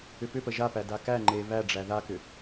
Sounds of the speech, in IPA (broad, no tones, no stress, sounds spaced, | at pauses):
ʏ p ʏ p ə ʒ a p æ d a k æ ŋ͡ǃ e β æ ɖ͡ʐ æ ð a k ʏ